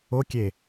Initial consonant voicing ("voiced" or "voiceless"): voiceless